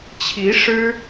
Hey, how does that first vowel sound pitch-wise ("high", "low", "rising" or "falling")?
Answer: rising